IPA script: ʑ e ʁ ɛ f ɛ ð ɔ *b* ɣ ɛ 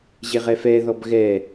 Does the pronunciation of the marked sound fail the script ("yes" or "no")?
no